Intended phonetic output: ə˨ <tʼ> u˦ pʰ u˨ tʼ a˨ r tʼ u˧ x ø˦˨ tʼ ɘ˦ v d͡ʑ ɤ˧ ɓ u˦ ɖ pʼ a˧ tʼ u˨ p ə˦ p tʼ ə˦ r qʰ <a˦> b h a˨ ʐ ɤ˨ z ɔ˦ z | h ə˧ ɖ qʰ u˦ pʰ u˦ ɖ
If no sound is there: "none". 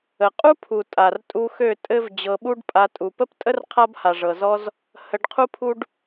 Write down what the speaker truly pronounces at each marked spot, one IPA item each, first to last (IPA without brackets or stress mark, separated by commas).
qʼ, a˦